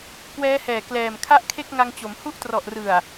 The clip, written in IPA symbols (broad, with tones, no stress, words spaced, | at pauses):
kwɛː˦˥hɛː˨˩klɛː˨˩m kʰa˥˩ʔkʰe˥˩k̚ŋa˧ŋt͡ɕo˩˦m hu˦˥ʔtrɔ˨˩ʔrɯ˨˩a̯